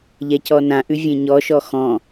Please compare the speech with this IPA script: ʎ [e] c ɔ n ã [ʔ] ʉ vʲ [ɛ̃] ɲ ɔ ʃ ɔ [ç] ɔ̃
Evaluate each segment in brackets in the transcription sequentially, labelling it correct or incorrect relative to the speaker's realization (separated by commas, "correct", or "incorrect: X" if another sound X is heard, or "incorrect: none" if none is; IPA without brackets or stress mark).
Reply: incorrect: ɛ, correct, incorrect: ẽ, incorrect: x